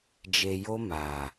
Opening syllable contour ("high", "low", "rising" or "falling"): low